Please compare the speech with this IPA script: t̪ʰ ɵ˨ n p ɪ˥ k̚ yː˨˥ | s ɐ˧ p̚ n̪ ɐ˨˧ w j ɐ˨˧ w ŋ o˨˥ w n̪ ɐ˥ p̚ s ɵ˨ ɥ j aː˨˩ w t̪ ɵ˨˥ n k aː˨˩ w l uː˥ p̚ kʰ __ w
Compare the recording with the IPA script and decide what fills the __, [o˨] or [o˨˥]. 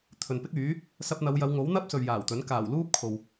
o˨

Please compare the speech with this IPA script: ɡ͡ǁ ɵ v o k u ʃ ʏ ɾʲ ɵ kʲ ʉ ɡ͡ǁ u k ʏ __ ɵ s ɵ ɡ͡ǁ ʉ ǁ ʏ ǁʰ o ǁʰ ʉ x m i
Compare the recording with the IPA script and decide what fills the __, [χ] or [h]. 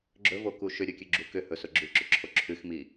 h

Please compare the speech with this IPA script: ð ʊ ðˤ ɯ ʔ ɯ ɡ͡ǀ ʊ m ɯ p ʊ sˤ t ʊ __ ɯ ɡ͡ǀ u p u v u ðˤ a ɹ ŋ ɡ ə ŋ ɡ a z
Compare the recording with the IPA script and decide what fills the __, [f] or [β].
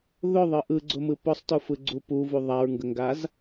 f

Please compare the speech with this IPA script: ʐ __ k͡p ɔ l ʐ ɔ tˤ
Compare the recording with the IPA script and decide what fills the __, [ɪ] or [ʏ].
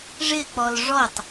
ɪ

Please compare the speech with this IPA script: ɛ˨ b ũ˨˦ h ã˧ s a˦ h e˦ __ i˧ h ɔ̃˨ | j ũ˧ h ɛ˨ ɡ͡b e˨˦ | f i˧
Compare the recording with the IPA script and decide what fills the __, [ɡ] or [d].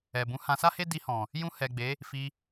d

